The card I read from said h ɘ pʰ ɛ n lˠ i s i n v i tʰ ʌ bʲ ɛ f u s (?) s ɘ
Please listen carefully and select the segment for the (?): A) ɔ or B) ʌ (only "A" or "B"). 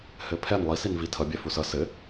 B